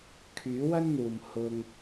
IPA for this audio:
kʰyː˨˥wɐ˥n n̪uː˨mhʊ˧ŋ

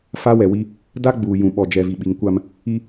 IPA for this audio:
fa˦wɛ˨wi˦ | da˦ɡ͡buː˨ jũ˨ɓɔ˨ d͡ʒɛ˨vi˨ ɓi˨ŋkʷa˦m | i˦

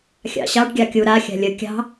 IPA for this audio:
xʲɑ̰ɕɑɖ ɡʲɑkʲu ɾa xʲa̤lʲə kʲɑ̤

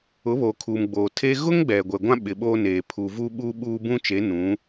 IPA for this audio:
ʊ˨˦βoː˨kʰuː˨mɡ͡boː˨ tʰeː˦ ɣʊ˦ŋ ɡ͡bɛ˨ɡʷɛ˨ɡʷã˦ ɓɪ˨ɓoː˦neː˨ pʰu˨vu˦ ɓuː˦ɓuː˦ bũ˦t͡ʃe˨˦ nũ˨˦

